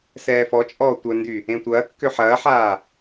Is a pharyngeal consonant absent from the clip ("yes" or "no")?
no